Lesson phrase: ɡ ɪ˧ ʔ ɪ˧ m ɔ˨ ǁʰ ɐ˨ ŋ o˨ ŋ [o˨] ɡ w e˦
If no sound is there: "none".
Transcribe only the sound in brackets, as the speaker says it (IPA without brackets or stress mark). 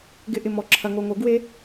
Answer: o˨